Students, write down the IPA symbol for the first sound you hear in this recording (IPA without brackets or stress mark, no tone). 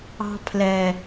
ɑ̤